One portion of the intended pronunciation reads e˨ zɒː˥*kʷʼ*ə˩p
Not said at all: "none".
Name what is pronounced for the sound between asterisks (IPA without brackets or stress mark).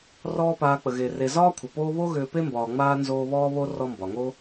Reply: kʷʰ